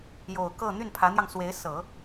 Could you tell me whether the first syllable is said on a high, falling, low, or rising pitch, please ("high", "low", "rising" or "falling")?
low